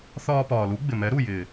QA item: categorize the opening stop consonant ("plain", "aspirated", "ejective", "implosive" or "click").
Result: plain